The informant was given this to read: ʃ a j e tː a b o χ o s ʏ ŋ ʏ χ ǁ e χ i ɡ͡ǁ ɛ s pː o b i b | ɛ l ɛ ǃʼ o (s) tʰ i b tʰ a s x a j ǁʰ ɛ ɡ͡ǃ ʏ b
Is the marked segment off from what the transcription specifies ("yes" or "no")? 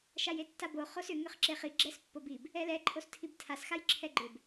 no